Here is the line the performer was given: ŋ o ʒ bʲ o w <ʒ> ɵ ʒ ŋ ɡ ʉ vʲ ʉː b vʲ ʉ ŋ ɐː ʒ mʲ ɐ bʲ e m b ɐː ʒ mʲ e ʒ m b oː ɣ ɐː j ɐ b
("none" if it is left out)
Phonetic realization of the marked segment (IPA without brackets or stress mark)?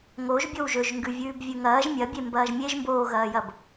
ʒ